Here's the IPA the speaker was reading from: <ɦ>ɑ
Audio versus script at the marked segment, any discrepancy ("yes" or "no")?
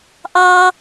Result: yes